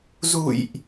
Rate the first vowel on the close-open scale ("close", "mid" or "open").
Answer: close